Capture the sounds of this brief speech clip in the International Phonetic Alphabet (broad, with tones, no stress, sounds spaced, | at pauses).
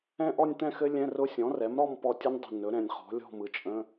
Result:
ɛ̃˥˧ ʔ ɔ˥˧ nʲ t̪ ɛ̃˥˧ x ɘ˦˥ lʲ ɛ̃˧˥˧ r ʊ˦˥ sʲ ɔ̃˩˥ r ɛ˩˥ m ɾ ɔ˥˧ m p ɔ˧˩ tʲ ʊ˦˥ nʲ dˤ ə̤˧˩ n ɵ˩˥ ɾ ɛ̃˧˩ nʲ χ ɔ̤˩˥ lʲ ɔ̤˥˧ m ɯ˩˥ t͡ʃʼ ə̃˧˥˧